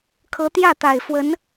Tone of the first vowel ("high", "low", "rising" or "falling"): rising